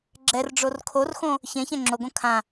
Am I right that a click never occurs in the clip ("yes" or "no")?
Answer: no